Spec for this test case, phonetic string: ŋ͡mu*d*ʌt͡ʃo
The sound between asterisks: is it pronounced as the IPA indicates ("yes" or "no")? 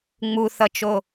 no